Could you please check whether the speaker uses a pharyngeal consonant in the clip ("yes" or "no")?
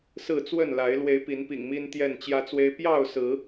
no